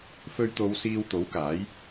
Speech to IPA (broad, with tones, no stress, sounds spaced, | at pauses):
f ɵ˧ ɥ t̪ o˨˧ w s iː˧ w t̪ o˨˥ w k aː˨˥ j